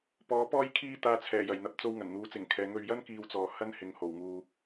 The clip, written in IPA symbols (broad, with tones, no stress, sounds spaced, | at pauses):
p ɔː˨˥ p ɔː˥ j kʰ iː˧ t̪ aː˨˧ t͡sʰ ɛː˨˩ j ɐ˨˩ j n̪ ɐ˨ p̚ t͡s o˧ w ŋ ɐ˨˩ n n̪ uː˨˥ t͡s ɪ˨˩ ŋ kʰ ɛː˨˥ ŋ ɵ˧ ɥ j ɐ˥ n k iː˧ w t͡s ɔː˨ h ɐ˥ n h ɪ˨ ŋ h o˨˩ w ŋ uː˨